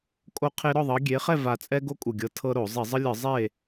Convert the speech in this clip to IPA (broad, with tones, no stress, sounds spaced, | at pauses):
kʼ o˦ qʰ e˦ ɾ ɔ˥˨ ðˤ ɤ˨˦ ɡʲ e˨˦ χ ɛ˥˨ v a˨˩ t͡sʼ ɛ˦ ɡ o˦ kʼ u˨˩ ɡʲ ɤ˨˦ tʰ ɤ˦ ɾ o˧˩˧ zˤ i˧˩˧ zˤ ɯ˦ lʲ ɯ˧˩˧ zˤ e˥˨